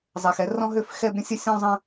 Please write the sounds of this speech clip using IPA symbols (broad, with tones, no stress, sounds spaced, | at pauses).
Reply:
zˤ ɛ˨ x ɛ˦ r ɔ̃˦ ɦ ø˦ f x ɛ˦ b ɾʲ ə̃˦ sʲ ə˦ sʲ ɔ̃˦ zˤ ə̃˦